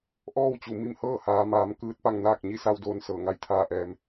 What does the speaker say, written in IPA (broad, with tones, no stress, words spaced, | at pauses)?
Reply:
ʔɔː˥˨wt͡ɕu˩ mi˥˨mhɤː˥˨ haː˩˧maː˩˧m kɯː˧˥t̚pa˧ŋnaː˥˨k̚ ɲi˥˨sa˧wdoː˧n sɤː˧˩ŋa˥˨jt̪ʰaː˥˨ʔɛː˧m